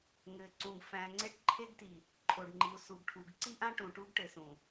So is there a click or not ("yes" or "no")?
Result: yes